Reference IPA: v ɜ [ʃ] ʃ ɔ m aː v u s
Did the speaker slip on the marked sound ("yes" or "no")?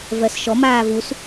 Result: yes